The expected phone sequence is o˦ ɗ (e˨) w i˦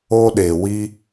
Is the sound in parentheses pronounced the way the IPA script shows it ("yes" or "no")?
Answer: yes